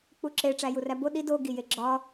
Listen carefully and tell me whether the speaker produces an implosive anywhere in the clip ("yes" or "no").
yes